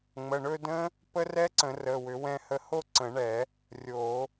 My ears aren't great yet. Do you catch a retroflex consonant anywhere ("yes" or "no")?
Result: yes